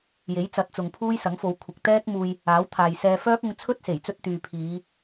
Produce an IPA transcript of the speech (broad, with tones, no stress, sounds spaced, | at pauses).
j e˨˥ j t͡s ɐ˨˥ t̚ t͡s ʊ˨ ŋ pʰ uː˥ j s ɐ˨˥ ŋ f o˨˧ w kʷʰ ɪ˨ k̚ t̪ ɛː˥ k̚ m uː˧ j | aː˨˥ w t̪ʰ aː˨ j s ɛː˧ f œː˥ k̚ ʊ˧ ŋ t͡sʰ ɵ˥ t̚ s e˨˩ j t͡s ɵ˧ t̚ t̪ yː˨ pʰ iː˨˧